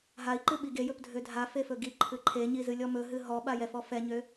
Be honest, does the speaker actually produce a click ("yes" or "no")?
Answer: yes